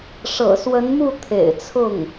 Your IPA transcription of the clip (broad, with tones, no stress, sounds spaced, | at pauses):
ʂ ɤ̰˨˩ s w ə˧˥ n m u˥˩ t̪ʰ ḛ˨˩ ɪ̯ t͡sʰ ʊ˥˩ ŋ